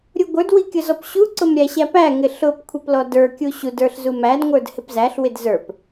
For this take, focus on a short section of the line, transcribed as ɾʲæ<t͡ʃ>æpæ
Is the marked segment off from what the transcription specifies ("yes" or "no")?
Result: yes